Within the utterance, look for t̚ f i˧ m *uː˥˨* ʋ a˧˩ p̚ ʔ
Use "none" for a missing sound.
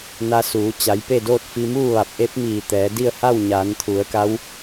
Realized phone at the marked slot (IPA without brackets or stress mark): uː˥˨